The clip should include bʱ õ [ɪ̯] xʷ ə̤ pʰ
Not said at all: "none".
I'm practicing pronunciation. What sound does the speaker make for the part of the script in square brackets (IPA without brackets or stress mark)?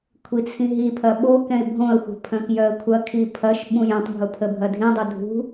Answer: ə̯